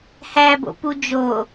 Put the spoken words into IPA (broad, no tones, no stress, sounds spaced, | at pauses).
h æ b o̰ p u d͡ʒ o